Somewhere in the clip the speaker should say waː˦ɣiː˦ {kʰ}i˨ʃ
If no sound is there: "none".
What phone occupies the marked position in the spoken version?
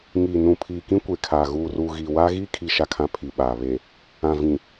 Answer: kʰ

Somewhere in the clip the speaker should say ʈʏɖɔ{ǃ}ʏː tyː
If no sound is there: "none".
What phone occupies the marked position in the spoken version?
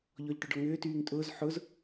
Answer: ŋ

